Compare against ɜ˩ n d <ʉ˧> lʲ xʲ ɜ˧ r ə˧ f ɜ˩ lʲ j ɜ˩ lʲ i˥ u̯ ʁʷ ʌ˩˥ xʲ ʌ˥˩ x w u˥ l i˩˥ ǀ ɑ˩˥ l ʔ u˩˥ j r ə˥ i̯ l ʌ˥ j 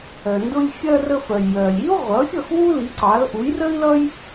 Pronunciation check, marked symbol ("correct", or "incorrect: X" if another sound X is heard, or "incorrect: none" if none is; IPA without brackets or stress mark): incorrect: ʊ˧